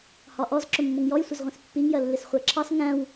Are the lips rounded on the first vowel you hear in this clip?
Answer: yes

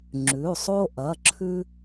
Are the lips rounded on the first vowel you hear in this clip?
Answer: yes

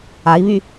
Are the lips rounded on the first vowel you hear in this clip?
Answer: no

